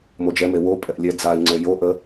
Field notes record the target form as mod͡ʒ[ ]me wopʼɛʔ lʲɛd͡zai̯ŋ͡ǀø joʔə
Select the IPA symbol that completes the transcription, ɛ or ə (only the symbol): ɛ